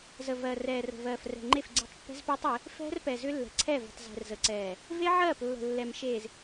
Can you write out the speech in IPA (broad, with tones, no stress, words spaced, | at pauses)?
zə˨ vɜ˨ rɛː˨rə̤˨ vɜː˨frɛ̤˨ŋ͡ǃe˦˨fɡ͡ǀe̤˦tˤ pːɛ̤˦zpʏː˦tˤe˨˦ | fɛ̤˦rpɛ˨zʏ˦ lːɛ̤˨ǀʰɛ˦˨ və̤˨tˤzɛ̤˨rzə˨ǀɛː˨ | ve˦ʕɜː˦˨plːə̤˨ lːɛ˨m ʃeː˨z